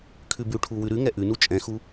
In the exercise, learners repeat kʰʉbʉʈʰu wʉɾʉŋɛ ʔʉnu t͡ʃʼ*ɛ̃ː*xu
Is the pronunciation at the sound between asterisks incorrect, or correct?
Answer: incorrect